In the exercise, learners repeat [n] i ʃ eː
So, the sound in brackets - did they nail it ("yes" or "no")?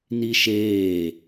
yes